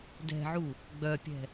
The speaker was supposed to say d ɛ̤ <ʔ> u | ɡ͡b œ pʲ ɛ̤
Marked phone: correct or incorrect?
incorrect